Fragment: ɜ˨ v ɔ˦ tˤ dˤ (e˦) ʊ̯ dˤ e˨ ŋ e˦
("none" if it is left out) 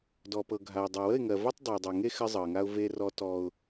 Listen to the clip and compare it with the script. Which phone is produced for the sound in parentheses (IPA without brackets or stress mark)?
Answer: e˨